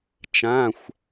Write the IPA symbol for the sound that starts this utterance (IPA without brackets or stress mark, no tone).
t͡ʃ